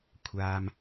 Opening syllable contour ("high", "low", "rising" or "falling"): low